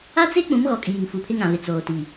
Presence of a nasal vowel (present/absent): present